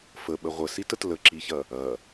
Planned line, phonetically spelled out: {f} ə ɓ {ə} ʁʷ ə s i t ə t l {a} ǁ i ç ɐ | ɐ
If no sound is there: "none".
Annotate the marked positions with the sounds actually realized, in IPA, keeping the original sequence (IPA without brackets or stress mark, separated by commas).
f, ə, ə